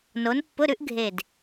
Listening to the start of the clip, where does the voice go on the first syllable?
rising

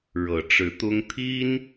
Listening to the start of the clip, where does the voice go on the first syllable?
low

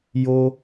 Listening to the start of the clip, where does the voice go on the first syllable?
high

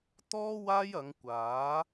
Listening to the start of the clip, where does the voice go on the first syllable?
high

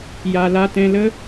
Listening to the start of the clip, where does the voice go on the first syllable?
low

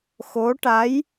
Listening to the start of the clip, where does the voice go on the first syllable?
rising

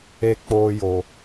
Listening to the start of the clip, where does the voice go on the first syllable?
low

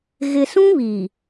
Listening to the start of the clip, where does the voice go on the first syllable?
low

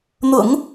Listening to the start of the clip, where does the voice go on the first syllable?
low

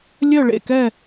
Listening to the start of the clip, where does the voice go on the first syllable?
falling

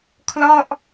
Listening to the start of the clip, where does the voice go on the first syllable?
falling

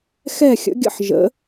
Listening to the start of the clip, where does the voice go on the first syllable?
falling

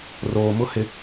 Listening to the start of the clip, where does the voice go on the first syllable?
low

